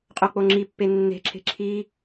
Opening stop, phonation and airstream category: ejective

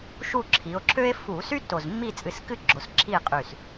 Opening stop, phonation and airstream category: click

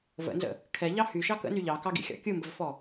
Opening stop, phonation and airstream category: aspirated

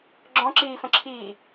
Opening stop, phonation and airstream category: click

